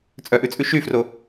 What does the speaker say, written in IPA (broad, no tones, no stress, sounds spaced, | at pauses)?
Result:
t͡sʼ œ ʔ ʉ t͡sʼ ʉ ʃ y f r o